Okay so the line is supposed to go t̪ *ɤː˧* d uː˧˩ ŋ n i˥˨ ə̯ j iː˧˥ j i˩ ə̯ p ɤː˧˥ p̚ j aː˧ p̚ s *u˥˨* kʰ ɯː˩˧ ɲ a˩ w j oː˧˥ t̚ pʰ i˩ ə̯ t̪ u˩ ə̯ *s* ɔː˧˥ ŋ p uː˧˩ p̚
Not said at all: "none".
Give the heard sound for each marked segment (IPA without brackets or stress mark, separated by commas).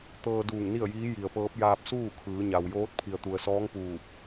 ɤː˧, uː˥˨, s